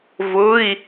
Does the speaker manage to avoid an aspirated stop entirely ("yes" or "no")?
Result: yes